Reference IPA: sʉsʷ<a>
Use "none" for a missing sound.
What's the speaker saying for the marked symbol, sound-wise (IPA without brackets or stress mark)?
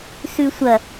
ɐ